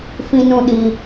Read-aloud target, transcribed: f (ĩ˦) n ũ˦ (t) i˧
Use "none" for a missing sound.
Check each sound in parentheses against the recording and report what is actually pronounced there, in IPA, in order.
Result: ĩ˦, ɗ

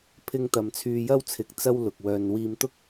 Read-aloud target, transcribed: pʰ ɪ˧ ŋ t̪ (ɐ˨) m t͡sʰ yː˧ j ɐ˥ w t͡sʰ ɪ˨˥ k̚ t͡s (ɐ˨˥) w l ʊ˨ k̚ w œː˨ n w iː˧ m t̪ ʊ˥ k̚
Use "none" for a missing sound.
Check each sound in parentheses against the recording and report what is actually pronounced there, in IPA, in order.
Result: ɐ˨, ɐ˥

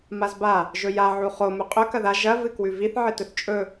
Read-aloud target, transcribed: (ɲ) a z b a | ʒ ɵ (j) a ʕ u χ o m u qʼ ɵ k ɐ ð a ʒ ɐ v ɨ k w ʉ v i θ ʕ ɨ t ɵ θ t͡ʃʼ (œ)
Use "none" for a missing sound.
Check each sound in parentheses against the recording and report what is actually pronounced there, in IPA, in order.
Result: m, j, ɵ

